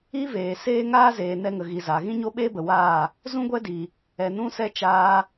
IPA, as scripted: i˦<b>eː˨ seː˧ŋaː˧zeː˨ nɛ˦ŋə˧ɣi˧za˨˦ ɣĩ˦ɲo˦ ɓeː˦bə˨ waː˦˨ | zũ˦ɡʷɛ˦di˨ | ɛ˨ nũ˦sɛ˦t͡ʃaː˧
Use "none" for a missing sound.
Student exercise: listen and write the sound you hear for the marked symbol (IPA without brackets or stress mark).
v